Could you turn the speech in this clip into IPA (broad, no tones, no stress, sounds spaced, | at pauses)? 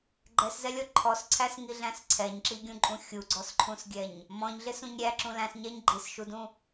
ɡ͡ǃ ɛ s z ɛ lʲ ɔ ǃʰ ɔ s ǀʰ æ s ŋ i ɮ æ̃ s ǀʰ ɛ ɲ ǁ i ɡʲ ũ ǃʼ ũ xʲ u ɡ͡ǀ ɔ s ǃʰ ũ s ɡʲ ɛ ɲ | m ɔ̃ ɲ ɮ ɪ s ũ ɲ ɾʲ æ ǁ ũ l æ̃ s ɲ ɛ ɲ ɡ͡ǃ i s ʃ u d ũ